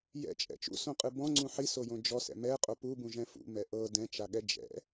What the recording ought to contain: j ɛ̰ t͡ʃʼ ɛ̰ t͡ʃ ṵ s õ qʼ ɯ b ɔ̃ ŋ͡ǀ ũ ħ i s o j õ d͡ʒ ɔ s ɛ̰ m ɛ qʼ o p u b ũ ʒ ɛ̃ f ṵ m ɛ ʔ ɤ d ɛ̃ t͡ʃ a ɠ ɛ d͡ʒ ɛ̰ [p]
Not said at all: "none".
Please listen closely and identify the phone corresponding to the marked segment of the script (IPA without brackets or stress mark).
none